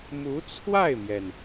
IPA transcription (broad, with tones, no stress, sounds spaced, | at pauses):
m u˧˥ t͡sʰ w a˥˩ ɪ̯ m j ɛ˩ n